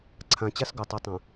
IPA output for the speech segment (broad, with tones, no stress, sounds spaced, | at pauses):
ǀʰ ã˨ t͡ɕ a˦ s ɡ o˨ tˤ i˨ tˤ ã˨